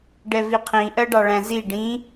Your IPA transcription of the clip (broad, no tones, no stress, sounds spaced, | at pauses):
ɖ ɛ v i qʰ ĩ ʔ ɜ ɖ ɑ ɭ æ̃ z i ɖ ĩ